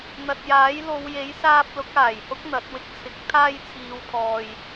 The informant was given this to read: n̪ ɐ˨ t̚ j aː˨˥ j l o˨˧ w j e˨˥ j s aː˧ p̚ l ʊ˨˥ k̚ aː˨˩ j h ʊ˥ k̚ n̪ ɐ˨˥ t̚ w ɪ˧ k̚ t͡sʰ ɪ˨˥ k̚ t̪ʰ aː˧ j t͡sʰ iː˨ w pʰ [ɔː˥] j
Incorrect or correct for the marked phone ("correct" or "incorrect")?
incorrect